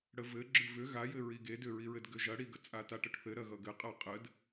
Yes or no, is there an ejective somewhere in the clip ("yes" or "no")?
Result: yes